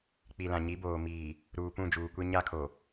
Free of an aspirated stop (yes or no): no